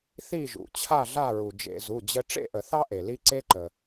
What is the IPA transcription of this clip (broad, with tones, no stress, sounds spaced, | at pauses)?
θ i˦˨ ʒ ṵ˩ t͡ɕʰ a˦˨ ɮ a˦˨ ɹ u˩ d͡ʒ ḛ˧˩˧ z u˩˧˩ d͡ʑ ə˦ ʈ͡ʂ ḛ˦˨ ʔ ə˧˩˧ θ ɑ˦ ʔ e˩ l i˦ ǀ e˦ ǃ ə˩